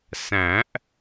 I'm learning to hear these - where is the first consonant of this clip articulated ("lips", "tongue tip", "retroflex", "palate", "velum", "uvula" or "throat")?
tongue tip